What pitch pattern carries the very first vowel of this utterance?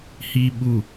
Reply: low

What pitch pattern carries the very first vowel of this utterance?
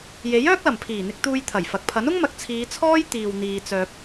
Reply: rising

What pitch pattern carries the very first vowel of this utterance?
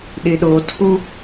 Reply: low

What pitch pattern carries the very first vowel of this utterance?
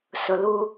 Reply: low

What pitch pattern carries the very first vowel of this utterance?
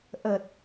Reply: low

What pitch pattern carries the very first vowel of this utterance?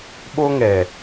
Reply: high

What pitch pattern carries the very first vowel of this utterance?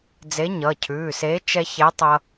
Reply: rising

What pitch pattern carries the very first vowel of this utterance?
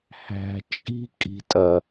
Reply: low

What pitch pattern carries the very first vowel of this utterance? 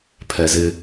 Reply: low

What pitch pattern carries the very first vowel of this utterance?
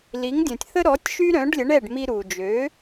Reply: rising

